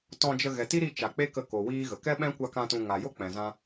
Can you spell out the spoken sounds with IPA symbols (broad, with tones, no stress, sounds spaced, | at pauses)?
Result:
t ɔ̃˧ d͡ʒ ə˧ ɣ ɛ˨ t i˦ ɾ i˧ t͡ʃ a˨ k͡p e˦ k ə˧ k o˨ w iː˦ ɣ ə˨ k ɛ˦ ɓ ɛ̃˦ kʷ a˧ k ã˧ t ũ˧ ŋ a˨ j o˦ k͡p ɛ̃˨ z ã˦